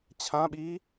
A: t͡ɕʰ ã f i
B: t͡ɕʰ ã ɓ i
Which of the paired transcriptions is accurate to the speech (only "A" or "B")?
B